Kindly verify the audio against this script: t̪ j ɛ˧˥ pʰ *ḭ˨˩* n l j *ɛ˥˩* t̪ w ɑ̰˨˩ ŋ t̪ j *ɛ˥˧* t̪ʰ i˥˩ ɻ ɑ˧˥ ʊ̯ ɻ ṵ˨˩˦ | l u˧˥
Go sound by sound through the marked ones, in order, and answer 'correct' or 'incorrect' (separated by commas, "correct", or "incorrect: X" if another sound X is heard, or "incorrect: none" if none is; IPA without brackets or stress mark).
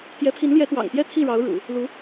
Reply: incorrect: i˧˥, incorrect: ɛ˧˥, correct